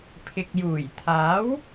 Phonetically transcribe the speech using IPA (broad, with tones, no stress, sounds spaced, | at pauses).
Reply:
pʰ ɪ˨ k̚ j uː˨˩ j t̪ʰ aː˨˥ w